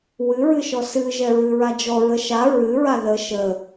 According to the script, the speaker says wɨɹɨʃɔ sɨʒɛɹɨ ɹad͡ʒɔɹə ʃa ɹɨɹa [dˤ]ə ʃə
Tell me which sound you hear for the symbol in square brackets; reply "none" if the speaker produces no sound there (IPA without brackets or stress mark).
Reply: ð